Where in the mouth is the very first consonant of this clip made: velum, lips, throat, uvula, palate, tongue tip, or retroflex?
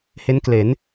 throat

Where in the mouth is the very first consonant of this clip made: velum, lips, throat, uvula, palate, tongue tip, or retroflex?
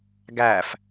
velum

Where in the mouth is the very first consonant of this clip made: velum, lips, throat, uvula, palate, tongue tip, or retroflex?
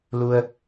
tongue tip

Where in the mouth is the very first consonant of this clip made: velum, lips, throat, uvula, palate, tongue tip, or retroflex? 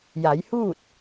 palate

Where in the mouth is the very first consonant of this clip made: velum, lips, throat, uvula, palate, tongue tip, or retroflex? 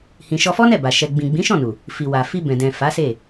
throat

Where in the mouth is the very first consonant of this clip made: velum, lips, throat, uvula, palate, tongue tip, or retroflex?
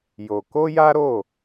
palate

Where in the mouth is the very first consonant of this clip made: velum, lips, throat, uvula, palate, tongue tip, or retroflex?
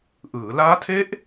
throat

